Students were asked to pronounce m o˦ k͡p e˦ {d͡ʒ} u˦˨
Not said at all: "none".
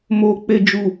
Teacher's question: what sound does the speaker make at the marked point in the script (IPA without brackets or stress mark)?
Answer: d͡ʒ